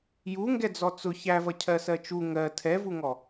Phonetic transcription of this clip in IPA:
j u ŋ ɡ ɛ d͡z ɔ t͡s ʊ ç æ v ʌ cʰ ɜ s ɜ t͡ʃ u ŋ ɜ tʰ ɛ v u ŋ ɔ

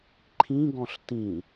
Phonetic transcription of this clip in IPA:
ǃʰ ĩ ɡ ɔ̃ ɬ t ĩ

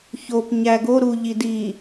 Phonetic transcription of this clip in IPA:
ç o p ɲ æ ɡ o ɾ u ʎ i d i

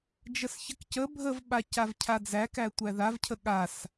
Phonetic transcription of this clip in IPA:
d͡ʒ ə s ç ə k c ə bʱ ə v ɓ a c a v cʰ a d͡z æ k æ tʷ æ ð a v cʰ ə ɠ a s

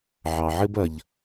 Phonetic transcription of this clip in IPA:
ʕ ɑ˩ ʕ ɘ˥ b ɐ˩ ʎ

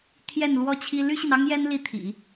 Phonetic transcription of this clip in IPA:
t̪ʰ j ɛ˥˩ n l w ɔ˥ t͡ɕʰ i˥ l y˥ ɕ i˨ n ɑ˥ ŋ j ɛ˥ n l i˥˩ t̪ʰ ḭ˨˩˦

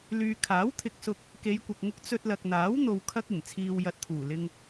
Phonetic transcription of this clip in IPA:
l yː˨ kʰ aː˨˥ w t̪ʰ ɪ˧ k̚ s ʊ˧ k̚ | k e˨˧ j kʷ ɐ˨ k̚ ŋ ʊ˧ k̚ t͡s ɵ˧ t̚ l ɐ˨ k̚ n̪ aː˨˥ w n̪ o˨ w kʰ ɐ˧ k̚ ɪ˨˩ ŋ t͡sʰ iː˨ w j ɐ˧ t̚ t̪ʰ uː˨˩ l ɪ˧ ŋ

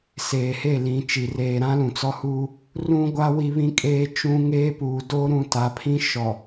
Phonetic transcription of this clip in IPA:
s eː˨ h e˦˨ l ĩ˨ t͡ʃ i˨ r eː˨ ɾ ã˦ l ũ˨ t͡s ɔ˦ h uː˦ | r ũ˦ ɡʷ a˦ w i˦ β ĩ˦ kʼ eː˦ t͡ʃ ũ˦ ŋ eː˦ p uː˨ d o˦ ɾ ũ˦ t a˨˦ pʰ ĩ˦ ʃ ɔ˨

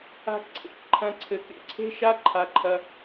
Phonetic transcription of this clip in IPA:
a̤˧ k ǀʰ ḛ˨ k ǃʰ ɐ̃˧ ǀʰ ɘ˧ k ḛ˦ ǀʰ e̤˦ ʃ a˦ ǃʰ a˧ ǃʰ ɐ˧

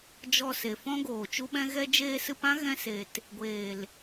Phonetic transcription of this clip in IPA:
d͡ʒ ɔ˧ s e˨ f ɔ̃˦ ɡ oː˨ t͡ʃ u˦ ɓ ɛ̃˦ ɣ ɛ˦ d͡ʒ eː˧ s ɨ˧ p ã˦ ɣ ɛ̃˧ s e˧ t | ɡʷ eː˨ l

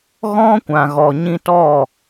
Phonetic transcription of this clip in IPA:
ɣ ɔ̃˦ kʷ ã˨ ɣ ɔ˨ ɲ ĩ˧ t ɔ˦˨

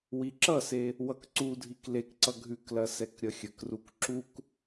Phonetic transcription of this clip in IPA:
w i ǁ ʌ s e | w ʌ k ǀ u dʱ i k l e k ǀ ʌ ɡʱ ʉ k l ɐ s ɛ k ɾʲ ʌ xʲ ə k r u k ǁ u k

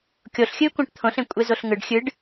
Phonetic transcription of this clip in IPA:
kʲ o ɬ xʲ ɨː kʷ æ̃ ʈ t̪ʰ õ ɬ ẽ kʷʼ e z o ɬ ŋ ɯ ɖ xʲ ɨ ɖ

